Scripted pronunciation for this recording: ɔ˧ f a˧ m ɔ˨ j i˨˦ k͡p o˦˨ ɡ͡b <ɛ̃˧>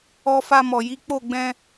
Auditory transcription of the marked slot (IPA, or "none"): ɛ̃˧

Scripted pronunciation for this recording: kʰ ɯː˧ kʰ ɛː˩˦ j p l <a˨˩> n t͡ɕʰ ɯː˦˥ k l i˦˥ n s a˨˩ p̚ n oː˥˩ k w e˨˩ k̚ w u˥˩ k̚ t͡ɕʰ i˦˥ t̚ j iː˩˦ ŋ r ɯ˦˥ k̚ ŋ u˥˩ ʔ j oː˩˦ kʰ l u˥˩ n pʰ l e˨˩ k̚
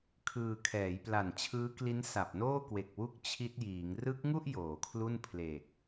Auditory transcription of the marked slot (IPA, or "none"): a˨˩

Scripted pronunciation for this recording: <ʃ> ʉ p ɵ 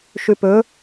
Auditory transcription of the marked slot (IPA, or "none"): ʃ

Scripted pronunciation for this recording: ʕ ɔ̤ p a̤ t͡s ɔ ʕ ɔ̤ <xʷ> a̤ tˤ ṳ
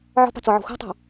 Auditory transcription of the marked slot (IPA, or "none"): xʷ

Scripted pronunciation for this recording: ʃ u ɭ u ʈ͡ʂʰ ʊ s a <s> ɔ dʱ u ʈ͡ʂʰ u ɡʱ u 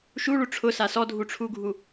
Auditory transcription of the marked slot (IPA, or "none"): s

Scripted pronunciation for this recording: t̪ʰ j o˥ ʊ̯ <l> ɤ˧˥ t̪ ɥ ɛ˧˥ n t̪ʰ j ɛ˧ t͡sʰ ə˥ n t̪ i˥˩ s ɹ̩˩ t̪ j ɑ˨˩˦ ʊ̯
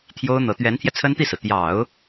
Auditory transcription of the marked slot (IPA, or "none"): n̪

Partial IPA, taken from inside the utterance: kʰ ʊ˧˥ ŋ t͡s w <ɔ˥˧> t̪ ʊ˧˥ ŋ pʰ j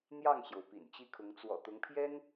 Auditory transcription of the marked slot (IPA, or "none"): ɔ̰˨˩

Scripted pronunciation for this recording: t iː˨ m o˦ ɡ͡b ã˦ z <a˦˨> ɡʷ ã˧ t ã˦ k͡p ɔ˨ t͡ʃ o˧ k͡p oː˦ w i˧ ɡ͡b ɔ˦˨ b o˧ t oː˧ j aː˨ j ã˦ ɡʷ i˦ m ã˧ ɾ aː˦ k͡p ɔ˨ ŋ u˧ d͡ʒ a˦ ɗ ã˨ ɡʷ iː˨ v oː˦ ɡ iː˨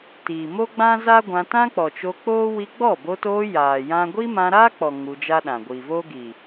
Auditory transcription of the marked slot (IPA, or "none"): a˦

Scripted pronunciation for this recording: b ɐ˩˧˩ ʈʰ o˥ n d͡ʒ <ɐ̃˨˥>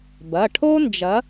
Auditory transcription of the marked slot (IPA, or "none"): ɐ˨˥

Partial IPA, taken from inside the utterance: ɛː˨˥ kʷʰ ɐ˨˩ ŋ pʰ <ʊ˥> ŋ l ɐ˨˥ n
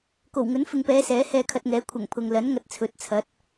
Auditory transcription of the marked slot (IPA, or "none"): ʊ˨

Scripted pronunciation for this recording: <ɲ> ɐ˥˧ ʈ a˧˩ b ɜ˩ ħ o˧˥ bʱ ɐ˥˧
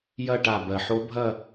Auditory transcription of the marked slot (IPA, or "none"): j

